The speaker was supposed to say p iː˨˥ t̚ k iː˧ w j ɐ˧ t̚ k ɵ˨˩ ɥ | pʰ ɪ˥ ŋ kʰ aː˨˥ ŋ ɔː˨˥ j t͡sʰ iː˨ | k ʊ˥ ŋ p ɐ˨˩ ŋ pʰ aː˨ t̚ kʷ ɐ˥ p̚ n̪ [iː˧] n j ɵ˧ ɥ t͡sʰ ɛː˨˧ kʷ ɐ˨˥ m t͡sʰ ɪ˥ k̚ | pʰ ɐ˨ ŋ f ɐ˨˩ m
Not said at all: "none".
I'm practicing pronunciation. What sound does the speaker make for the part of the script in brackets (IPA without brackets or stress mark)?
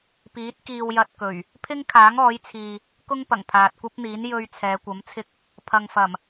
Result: iː˨˥